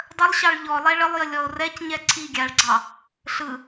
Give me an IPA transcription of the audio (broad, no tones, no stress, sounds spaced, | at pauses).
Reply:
dˤ ə lˠ ɕ ɑ ɭ ʎ ɔ lˠ ɛ ɭ ə lˠ j ə lʲ ɔ o̯ r ɛ c ɲ ɛ ǀʰ i ɡʲ a ɭ ɡ͡ǀ ɑ | ɬ ɯ